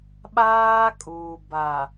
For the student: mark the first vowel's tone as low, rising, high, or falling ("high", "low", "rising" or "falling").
high